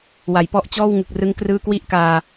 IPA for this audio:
w a˩˦ j p ɔ˦˥ ʔ t͡ɕ ɔː˥˩ w ŋ ɯ˨˩ k̚ r ɯ˦˥ ŋ k r ɯː˧ k w i˦˥ ʔ k aː˧

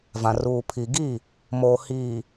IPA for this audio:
v ã˨ r uː˨ pʰ i˨ ɡ i˦˨ | m oː˨ h iː˨

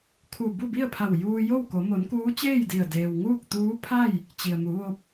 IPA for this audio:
kʰ u˧˩ b u˥˨ b i˥˨ ə̯ pʰ a˧˩ w j uː˧ j o˥˨ w k o˩˧ m o˩˧ n k uː˧˥ t͡ɕ eː˥˨ j d i˧˩ ə̯ d eː˩ w ŋ uː˥˨ k̚ t̪ uː˧˥ pʰ a˥˨ j | t͡ɕ i˩ ə̯ m u˩˧ ʋ o˧ p̚

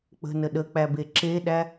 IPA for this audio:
k͡p ə̤ n ə ɗ ə k͡p æ b e ǁ e ɗ æ

